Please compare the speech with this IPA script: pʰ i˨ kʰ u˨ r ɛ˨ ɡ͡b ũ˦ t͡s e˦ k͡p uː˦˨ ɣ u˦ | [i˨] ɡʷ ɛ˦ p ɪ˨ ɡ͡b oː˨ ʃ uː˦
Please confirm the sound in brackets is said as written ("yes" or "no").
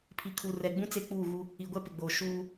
yes